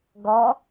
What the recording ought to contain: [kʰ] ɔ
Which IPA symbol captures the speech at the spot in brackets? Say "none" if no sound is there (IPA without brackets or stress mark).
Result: ɡ